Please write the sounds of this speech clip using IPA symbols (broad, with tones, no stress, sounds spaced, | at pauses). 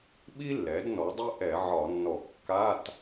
ɓ i˥ lː ɛ˩˥ d n ɔ˩˥ dˤ i˥ ʔ ɛ˧˩˧ ʕ ɒ˧˩˧ nː ɔ˧˩˧ kː a˧˥˧ t